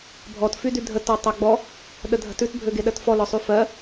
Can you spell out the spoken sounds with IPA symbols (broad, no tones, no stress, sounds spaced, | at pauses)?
bʱ ɔ t f y d y dʱ ə t ɔ tˤ a ɡ͡b ɔ | ɗ ə dʱ ə̤ t ʉ t bʱ ø ɡ e ɗ ɜ t f ɔ l ɔ sˤ y f ɜ